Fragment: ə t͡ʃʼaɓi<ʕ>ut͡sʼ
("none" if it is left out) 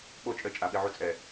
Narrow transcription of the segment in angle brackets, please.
ʕ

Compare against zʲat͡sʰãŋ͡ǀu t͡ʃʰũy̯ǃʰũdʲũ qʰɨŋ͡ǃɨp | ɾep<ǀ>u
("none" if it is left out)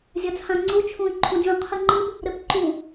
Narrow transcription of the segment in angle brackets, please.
ǃ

